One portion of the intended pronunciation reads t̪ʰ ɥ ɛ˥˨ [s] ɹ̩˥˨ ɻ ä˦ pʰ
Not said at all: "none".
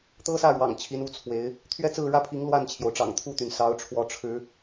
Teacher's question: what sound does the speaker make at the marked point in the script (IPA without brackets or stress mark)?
t͡s